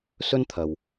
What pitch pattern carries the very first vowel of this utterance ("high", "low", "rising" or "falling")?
high